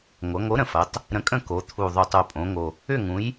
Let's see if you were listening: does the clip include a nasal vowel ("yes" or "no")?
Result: yes